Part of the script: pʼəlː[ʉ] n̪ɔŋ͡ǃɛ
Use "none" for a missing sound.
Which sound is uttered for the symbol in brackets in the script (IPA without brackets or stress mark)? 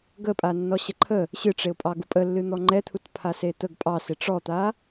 ɨ